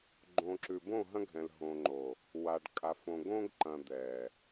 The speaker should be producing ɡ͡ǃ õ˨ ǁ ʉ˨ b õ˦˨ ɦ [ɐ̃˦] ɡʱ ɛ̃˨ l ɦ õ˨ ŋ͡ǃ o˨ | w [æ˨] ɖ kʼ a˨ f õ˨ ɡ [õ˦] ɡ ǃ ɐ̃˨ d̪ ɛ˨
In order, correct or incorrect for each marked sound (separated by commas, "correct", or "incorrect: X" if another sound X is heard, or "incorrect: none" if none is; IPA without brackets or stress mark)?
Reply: correct, incorrect: a˨, correct